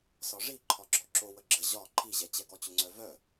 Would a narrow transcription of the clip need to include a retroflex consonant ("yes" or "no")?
yes